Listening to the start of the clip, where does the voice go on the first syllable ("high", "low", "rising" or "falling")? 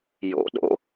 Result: rising